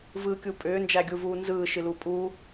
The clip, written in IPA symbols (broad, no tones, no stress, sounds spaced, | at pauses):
v ɯː kʲ u pʼ ʏː n d͡ʒ æ ɡʲ u v uː n z ɯː ʃ ɨ l u pʼ uː